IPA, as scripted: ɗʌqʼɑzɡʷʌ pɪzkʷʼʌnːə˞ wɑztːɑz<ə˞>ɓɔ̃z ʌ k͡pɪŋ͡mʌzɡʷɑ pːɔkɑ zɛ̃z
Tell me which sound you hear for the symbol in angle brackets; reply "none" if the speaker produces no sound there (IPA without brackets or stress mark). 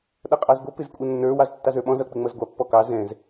ə˞